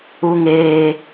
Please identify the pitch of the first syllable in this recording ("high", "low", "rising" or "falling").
high